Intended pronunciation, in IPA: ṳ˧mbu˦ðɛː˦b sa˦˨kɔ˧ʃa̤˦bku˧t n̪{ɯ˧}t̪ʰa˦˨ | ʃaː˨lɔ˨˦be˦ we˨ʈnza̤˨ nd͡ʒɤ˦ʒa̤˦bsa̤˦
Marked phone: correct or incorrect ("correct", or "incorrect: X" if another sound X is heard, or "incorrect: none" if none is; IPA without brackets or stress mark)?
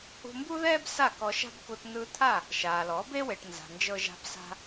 correct